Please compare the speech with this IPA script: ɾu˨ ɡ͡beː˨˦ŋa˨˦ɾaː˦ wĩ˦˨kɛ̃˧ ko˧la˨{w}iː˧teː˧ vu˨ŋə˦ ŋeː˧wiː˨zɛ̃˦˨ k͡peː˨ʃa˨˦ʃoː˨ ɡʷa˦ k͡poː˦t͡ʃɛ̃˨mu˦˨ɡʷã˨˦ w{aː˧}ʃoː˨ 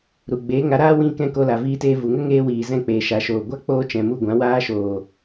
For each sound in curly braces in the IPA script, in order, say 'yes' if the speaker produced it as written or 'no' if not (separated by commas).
no, no